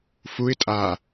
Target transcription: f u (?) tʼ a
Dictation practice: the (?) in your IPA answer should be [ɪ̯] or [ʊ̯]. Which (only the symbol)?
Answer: ɪ̯